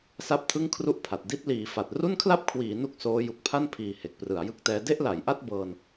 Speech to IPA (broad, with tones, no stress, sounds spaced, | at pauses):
s a˥˩ p̚ tʰ ɯ˥˩ ŋ kʰ r u˥˩ ʔ pʰ a˨˩ t̚ d i˦˥ t̚ l iː˩˦ f a˨˩ t̚ r u˥˩ n kʰ l a˥˩ p̚ kʰ w iː˩˦ n u˥˩ k̚ s oː˦˥ j u˨˩ k̚ pʰ a˥˩ n pʰ iː˨˩ h e˨˩ k̚ p r ɯ˩˦ a̯ j ɯ˥˩ k̚ t ɛː˦˥ d e˥˩ ʔ l a˩˦ j ʔ a˥˩ t̚ b ɤː˧ n